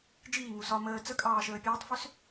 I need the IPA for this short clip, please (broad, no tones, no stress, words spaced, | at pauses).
d͡ʒiːŋu sɒ məː t͡səkʼɑːʃəː pʲəːtˤfʏs